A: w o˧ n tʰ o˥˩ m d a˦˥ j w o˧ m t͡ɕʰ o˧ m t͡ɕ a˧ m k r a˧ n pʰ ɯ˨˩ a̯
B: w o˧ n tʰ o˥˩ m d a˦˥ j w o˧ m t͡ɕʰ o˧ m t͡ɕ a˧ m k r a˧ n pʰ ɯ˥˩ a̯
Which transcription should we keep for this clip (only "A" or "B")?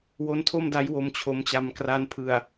A